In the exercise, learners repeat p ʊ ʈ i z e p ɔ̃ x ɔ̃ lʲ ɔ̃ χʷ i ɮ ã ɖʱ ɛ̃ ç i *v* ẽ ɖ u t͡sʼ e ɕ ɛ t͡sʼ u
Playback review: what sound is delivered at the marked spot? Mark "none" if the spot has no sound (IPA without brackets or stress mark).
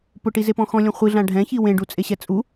w